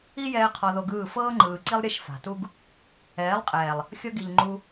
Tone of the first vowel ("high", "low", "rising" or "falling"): high